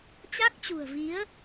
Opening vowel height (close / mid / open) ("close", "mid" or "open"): open